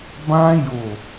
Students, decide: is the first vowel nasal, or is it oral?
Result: nasal